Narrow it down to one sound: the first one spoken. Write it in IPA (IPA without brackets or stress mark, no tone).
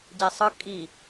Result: ɟ